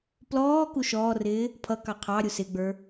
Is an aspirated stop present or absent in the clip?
present